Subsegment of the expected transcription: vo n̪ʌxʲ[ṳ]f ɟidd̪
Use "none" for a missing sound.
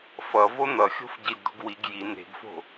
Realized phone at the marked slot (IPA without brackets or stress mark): o̤